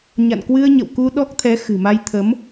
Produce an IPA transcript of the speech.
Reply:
ɲ a̰˧˨ n k w ɨ˧ ə̯ ɲ ə̰˧˨ w k u˧ ɗ ɔ˦˥ k̚ t̪ʰ ɛ˨˦ x ɨ̤˨˩ m a˧ j t̪ʰ ə˨˦ m

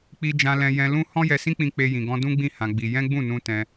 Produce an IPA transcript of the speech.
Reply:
k͡p i˦ d͡ʒ ã˦ l ɛ̃˦ j ɛ̃˦ l ũ˦ h ɔ̃˦ j ɛ˧ s ĩ˦ k͡p ĩ˧ k͡p e˦ j ĩ˧ ɡ ɔ̃˦ d ũ˦ ɡ͡b ĩ˦˨ h ã˧ ɡ͡b i˧ j ɛ̃˦ ɡ͡b ũ˦˨ n ũ˧ t ɛ̃˧

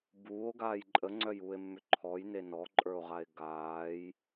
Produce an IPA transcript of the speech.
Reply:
b uː o̯ ɡ aː j ǃʼ ə ŋ͡ǀ œ j uː e̯ mː ʏ ǃʰ ɔ j n e n ɔ ǃʼ ə˞ o̯ ʁ a e̯ ɡ aː j

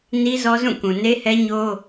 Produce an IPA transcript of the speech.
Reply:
n i˦ z ɔ˦ z ũ˦˨ k ũ˨ n e˦ h ɛ˦ ɲ o˦

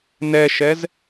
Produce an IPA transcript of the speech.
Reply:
n ɛ ʃ ɛ z

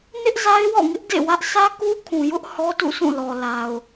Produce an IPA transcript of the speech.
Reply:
n ɪ˦ ʔ z a˦ ɪ̯ w ɔ̰˦˨ ŋ ɪ˦ ʔ d ḛ˦˨ w ä˦ ʔ sʰ ä˦ k u˦ kʰ ũ˨ j ʊ˦ ʔ h ɔ˦ t ṵ˦˨ s ũ˦˨ l ɔ˨ l a˨ ʊ̯

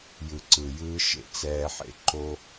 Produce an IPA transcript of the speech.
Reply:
j ɯ˨ ǀ ɯ˨ j ɯː˧ ʃ ḛ˨ t͡s ɛː˧ ħ ḛ˧ ǃ oː˦

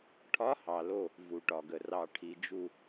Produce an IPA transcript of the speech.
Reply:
ʈʰ ɒ˨˥ h ɑ˩ l o˧˩ | v u˩ ʈ ɒ˩ ɡ ə˩ r ɑ˩ ʈʰ i˩ d͡ʒ u˧˩

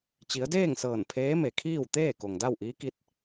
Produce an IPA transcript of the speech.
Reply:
t͡ɕ i˩˧ ə̯ d eː˥˨ ŋ s ɤː˧˩ n pʰ eː˧˥ m e˩ kʰ iː˥˨ w t̪ eː˥˨ k o˩ ŋ d a˥˨ w ʔ iː˧˥ k i˧˥ t̚

